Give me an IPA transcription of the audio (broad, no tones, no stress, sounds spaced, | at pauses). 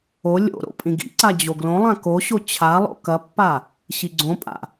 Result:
o lʲ o̰ ɾ o̰ pʼ ĩ ɡ ḭ ǀ a d͡ʑ o ɡ l õ lˠ ã k o ɕ o t͡ɕʰ a lˠ o̰ k ɐ pː a | ɕ i ɡ͡ǀ õ pʼ a̰